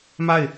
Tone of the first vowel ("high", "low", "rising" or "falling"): falling